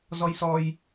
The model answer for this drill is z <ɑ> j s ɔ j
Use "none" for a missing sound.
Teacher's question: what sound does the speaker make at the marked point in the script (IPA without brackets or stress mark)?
ɔ